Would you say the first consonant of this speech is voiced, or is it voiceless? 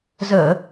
voiced